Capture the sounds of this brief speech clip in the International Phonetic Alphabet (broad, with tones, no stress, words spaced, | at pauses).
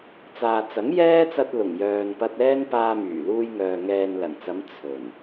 t͡saː˨t͡sɐ˨˥ŋjɛː˥t͡sɐ˧t̚ lʊ˨˩ŋjœː˨npɐ˧t̚ɛː˥n paː˧myː˨˩luː˧jŋœː˨ ŋɛː˨nlɐ˨˩nt͡sɐ˨˧m t͡sʰɵ˨˩n